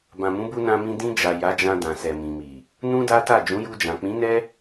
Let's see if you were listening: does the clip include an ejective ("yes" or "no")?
no